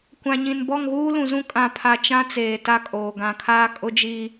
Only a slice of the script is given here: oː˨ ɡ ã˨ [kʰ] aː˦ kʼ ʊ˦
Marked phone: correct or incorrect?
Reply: correct